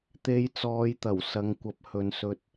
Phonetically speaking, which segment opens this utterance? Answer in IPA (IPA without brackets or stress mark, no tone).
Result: t̪